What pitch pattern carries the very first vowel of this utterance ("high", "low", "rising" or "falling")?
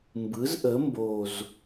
rising